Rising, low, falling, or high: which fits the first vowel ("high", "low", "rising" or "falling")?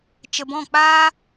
low